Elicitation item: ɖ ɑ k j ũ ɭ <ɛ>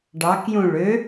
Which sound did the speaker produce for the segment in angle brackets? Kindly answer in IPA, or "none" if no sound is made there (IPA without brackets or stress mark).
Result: ø